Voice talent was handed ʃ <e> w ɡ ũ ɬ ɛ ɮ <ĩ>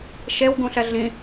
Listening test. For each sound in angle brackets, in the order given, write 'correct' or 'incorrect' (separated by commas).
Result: correct, correct